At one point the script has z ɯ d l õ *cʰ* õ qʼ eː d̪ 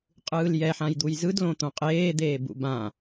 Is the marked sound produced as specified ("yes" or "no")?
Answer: no